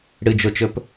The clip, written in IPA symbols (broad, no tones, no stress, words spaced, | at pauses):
ɽɨd͡ʒot͡ʃɵp